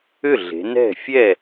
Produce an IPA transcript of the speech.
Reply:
ʏ˥˩ ɮ e̤˩˧ n ɛ̤˥˩ fʲ ɛ˥˩

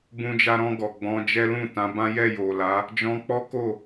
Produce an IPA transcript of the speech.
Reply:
b ũ˧ d͡ʒ a˧ ɾ ɔ̃˧ ɡ ɔ˨ ɡ͡b ɔ̃˨˦ d͡ʒ ɛ˦ l ũ˦˨ t ã˨˦ b ã˦ j ɛ˦˨ j o˨ l a˨˦ | d͡ʒ ɔ̃˧ k͡p ɔ˦ k o˦˨

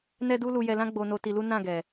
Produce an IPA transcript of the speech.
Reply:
n ɛ˦ d u˦ l u˧ j ɛ˧ l ã˦ ɡ͡b o˧ n o˧ t i˧ l u˦ n ã˦˨ ɡ ɛ˨

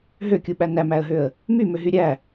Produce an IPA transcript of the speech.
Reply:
ɦ ø kʲ u ɓ æ n æ m æ ə̯ ɦ ø ə̯ | m y m ø ɦ y ɾʲ æ

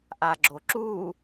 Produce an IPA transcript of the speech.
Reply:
ʔ a ɡ͡ǁ o ǁ u

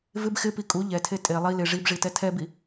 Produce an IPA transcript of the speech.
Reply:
v ɪ b x ɪ p i kʼ u ʎ ɛ tʰ e tʼ e lˠ i l ɪ ʐ i b ʐ i t ɛ tʰ ɛ b i

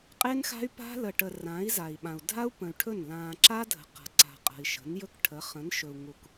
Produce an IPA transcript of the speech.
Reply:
qʼ e˦ n x a̤˦ y̯ p a̤˦ l ə˨ ʈ ə˨ r ã˨˦ i̯ z a˨ i̯ ɓ ã˨ u̯ dʱ a˦ u̯ p ə̃˨ y̯ ʈʰ ɵ˦˨ n l ãː˨ ǁ a˦ dʱ ə̤˨ q a̤˨ ǀ a̤˨ qʼ ə̤˨ i̯ ʃ ə̤˨˦ n j ɵ˦ k ʈʰ ə˨˦ χ ə̃˨˦ n ʃ ɵ˨ u̯ ŋ u˨ k

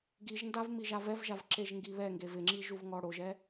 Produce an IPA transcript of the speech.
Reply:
ɡ i ʒ n d a v m i ʒ a v ɛ v ʒ a v ǁ e ʒ ŋ ɡ i β ɛ ŋ ɡ e v ɪ ŋ͡ǁ i ʒ u v ŋ ɔ ɽ o ʒ ɛ

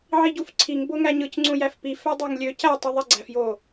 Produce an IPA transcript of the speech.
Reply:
ʕ i ɟ u f ǀʰ i ŋ b o ŋ æ ɲ ɯ c ŋ͡ǀ ũ j æ f p i f æ dˤ ɑ ŋ lʲ ø c æ tˤ i ðˤ e ɡ͡ǀ æ f j o

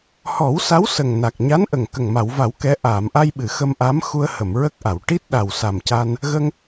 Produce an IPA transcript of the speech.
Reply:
h ɔ˨˩˦ w s a˧˥ w s ə˨˩ ŋ n a˨˩ k̚ ɲ a˧˥ n ʔ ə˨˩ ŋ k ə˨˩ ŋ m a˨˩˨ w v a˨˩˦ w k ɛ˧˥ ʔ aː˨˩˨ m ʔ a˧ j ɓ ɨ˨˩˨ x ə˧ m ʔ a˧˥ m x u˧ ə̯ h ə˨˩˨ m ɹ ə˦˥ k̚ ʔ a˨˩˨ w ʈ i˦˥ t̚ ɗ a˨˩ w s a˨˩ m c a˧ n | ɣ ə˧ ŋ

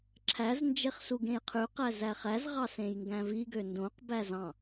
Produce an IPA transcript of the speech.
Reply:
ǁʰ æ z n d͡ʒ e χ s u ɡ ẽ j qʰ y q æ z æ χ æ z ʁ ɑ s ẽ j ŋ ɡ æ̃ v i ɡ ø n d õ q b æ z ɑ̃

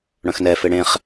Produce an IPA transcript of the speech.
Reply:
ɽ œ̃ x n ɛ f e ɽ ẽ χ

